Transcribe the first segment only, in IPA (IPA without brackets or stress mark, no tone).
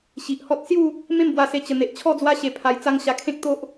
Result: ɕ